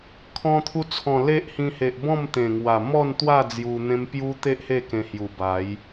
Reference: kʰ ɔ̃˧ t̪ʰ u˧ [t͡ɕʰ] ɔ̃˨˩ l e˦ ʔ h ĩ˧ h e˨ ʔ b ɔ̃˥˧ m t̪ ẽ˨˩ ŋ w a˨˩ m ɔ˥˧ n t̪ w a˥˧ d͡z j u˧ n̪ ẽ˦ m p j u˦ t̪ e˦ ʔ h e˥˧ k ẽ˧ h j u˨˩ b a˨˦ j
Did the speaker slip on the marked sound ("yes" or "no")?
yes